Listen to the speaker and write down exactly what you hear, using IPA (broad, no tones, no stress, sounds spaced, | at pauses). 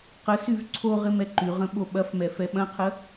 q ə s y v ǀʰ o ʁ ɪ m ɛ ǃ y ʁ ə̃ ɓ o ɓ ɐ f m ɛ f ɛ ɓ ɐ̃ qʰ ə